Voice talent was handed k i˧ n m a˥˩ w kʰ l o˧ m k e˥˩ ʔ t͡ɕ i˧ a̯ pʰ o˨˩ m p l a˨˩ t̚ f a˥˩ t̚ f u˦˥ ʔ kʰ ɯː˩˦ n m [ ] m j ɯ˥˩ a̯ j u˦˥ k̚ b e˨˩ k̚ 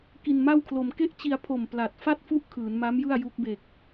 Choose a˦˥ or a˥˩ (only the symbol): a˦˥